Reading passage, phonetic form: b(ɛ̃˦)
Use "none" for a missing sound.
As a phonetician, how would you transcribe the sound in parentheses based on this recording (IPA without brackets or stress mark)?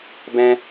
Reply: ɛ̃˦